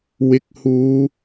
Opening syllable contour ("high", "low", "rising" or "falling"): rising